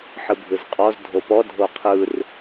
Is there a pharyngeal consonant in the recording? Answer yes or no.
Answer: yes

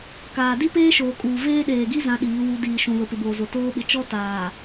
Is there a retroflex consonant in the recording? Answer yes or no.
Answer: no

